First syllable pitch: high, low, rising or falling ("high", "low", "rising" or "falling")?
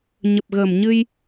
low